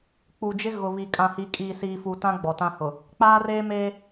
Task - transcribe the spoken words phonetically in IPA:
k͡p u˨ d͡ʒ ɪ˦ ɣ ʊ˨ β i˨ kʼ ã˨ h i˨ kʼ iː˨ s iː˨ f u˨ t ã˦ ɡ͡b ɔ˨ t ã˦ h ʊ˨ | k͡p aː˦ r eː˦ m eː˦

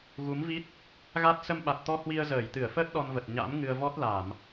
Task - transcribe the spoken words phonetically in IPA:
ɣ u˨˦ m v i˦˥ t̚ | ɣ a˦˥ t̚ s ə˧ m ɓ a˨˩ t̚ t̪ ɔ˧ h w i˧ ə̯ z əː˧˩ j t̪ ɨ˧˩ ə̯ f əː˦˥ t̚ ɗ ɔ˧ n v ə˨˩ t̚ ɲ a̰˧˥ m ŋ ɨ˧ ə̯ v ɔ˦˥ t̚ l a˧˩˨ m

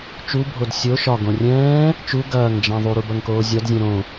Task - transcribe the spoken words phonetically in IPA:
t͡ʃ u bʱ o d sʲ o ʃ ɒ ɡ õ rʲ ɛ̃ː | t͡ʃ u ɡ ɐː ŋ d͡ʒ ɐ̃ ðˤ u ɾ u b ɐ ŋ k oː zʲ ɒ d zʲ ɛ̃ ɾ õ

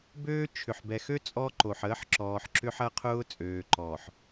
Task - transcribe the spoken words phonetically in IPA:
b øː˦ t͡ʃʰ ʏ˨ ħ b ɛ˨ x ø˦ t͡sʼ ɔ˦ ǃ o˨ ħ əː˦ ħ ǁ ɔː˨ ħ ǁ ʏ˦ ħ ɐ˦ qʰ ʊː˦ t͡sʼ øː˨ ǃ ɔː˨ ħ

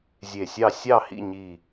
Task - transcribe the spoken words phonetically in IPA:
zʲ e˧˩ sʲ ɑ˥˨ sʲ ɑ˥˨ h ḭ˥˨ ɲ i˧˩

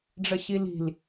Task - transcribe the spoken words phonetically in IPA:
ɖ͡ʐ ə ɕ i l i̤ l

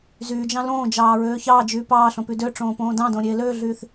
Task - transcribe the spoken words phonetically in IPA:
z yː d͡ʒ ɑ̃ l õː d͡ʒ ɑː ɹ øː ç ɑː d͡ʒ yː p ɑː ɬ õ p y d ø ʈ͡ʂ õː p õː d ɑ̃ d õ ɾʲ eː l øː ɮ yː θ

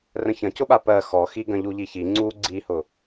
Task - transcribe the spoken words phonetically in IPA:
r ə̃ ç ɐ̃ c ʊ ɓ a p ɜ x ɔ x i ɡ ɐ̃ ʎ u ʎ i ç i ŋ͡ǀ u ɡ͡ǀ i h ʊ

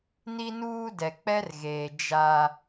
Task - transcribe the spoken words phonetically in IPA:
n i˦ n uː˦ d ɛ˨ k͡p ɛ˦ r ɣ eː˨ d͡ʒ a˦

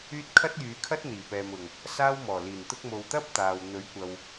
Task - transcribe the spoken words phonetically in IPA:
yː˥ t̚ kʰ ɐ˥ t̚ j yː˨˧ kʰ ɐ˥ t̚ n̪ iː˨˩ p ɛː˨ m ʊ˨˩ ŋ | s aː˥ w m ɔː˨˩ l iː˨˩ n t̪ ʊ˧ k̚ m o˨ w t̪ ɐ˥ p̚ t̪ aː˨ w n̪ ɵ˨˥ ɥ kʷ ɐ˨ w

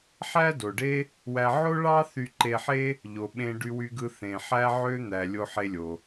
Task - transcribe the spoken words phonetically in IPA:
ħ æ˥ d o˩ ɖ e˥ | w æ˧ ʕ o˥ ɭ ɑ˥ θ y˧ ǃ e˧ ħ e˥ | ʎ o˩ ɓ ẽ˧ ɖ y˧ w y˧ ɡ ɯ˧ θ ẽ˩ ħ æ˥ ʕ ø˥ n̪ æ˩ lʲ o˧ ħ e˧ lʲ o˩

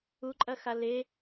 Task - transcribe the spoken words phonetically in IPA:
u ǃʼ ɐ x a l e

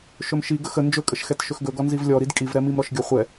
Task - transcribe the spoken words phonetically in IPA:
ʃ ɵ m ʃ i ɡ ə x ə n d͡ʒ ɵ kʼ ə ʃ x ɛ t ʃ ɵ x ɡ ɵ ɡ ɔ n z i v lʲ ɔ ɾ i d kʼ i v ɾ ɛ m i m ɾ ɔ ʃ ɡʲ ɔ χʷ ɛ

